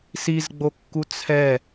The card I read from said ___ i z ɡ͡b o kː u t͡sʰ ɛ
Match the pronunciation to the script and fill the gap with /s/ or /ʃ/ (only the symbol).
s